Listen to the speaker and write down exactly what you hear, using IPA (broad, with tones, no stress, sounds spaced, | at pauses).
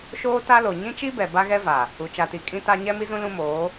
ʃ oː˦ t a˦ l o˨ ɲ ĩ˦ t͡ʃ i˦ b ɛ˨ b a˦ ɣ ɛ˦ v a˨ | u˨ t͡ʃ a˨ t i˨ kʼ ĩ˦ t a˦ ɲ ɛ˦ m i˦ z ũ˦ l ũ˦ m oː˨˦